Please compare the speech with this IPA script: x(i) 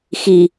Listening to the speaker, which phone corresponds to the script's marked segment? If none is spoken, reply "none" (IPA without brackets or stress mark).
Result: i